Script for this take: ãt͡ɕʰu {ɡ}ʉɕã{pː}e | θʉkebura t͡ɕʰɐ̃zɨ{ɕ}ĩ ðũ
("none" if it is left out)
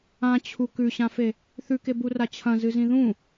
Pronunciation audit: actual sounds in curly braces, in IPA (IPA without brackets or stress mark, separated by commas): k, f, z